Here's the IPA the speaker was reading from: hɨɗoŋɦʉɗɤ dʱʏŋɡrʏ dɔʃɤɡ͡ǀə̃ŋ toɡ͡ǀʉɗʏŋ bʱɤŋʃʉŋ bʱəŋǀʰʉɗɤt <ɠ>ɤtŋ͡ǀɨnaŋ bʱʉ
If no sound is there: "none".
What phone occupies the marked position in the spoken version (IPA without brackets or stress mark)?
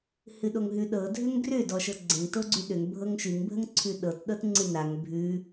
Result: ɗ